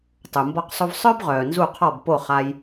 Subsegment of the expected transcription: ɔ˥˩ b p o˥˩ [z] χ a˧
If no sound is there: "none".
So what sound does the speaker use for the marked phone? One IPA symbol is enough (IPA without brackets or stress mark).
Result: none